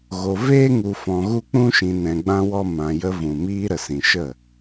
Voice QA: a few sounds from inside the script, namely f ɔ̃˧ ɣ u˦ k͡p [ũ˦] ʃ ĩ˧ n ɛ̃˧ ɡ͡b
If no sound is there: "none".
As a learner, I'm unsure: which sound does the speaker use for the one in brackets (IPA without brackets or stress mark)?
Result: ũ˦